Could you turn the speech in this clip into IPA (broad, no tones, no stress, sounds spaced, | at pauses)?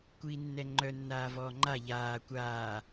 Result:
kʷ iː nː ɛ ŋ͡ǃ œ nː aː v ɔː ŋ͡ǃ a ʎ aː kʷ aː